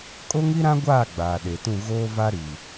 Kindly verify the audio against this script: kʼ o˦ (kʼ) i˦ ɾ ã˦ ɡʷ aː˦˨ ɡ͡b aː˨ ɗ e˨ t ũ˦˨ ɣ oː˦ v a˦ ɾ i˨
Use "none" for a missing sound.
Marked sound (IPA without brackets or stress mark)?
ŋ